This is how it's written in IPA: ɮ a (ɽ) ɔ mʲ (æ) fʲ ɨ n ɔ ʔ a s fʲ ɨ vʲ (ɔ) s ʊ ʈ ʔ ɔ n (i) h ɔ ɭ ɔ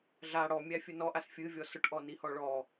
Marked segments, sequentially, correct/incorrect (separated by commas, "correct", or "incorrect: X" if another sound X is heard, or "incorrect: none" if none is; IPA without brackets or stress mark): correct, correct, correct, correct